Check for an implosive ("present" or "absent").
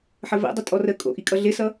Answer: absent